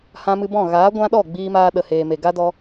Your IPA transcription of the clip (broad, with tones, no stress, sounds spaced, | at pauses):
h ã˧ m ɨ˧ b ɔ̃˦˨ ɣ aː˨˦ ɡʷ ã˦ ɗ ɔ˦˨ ɡ͡b iː˧ m aː˧ ɗ ə˨ h eː˨ m e˨ ɡ a˦ d ɔ˧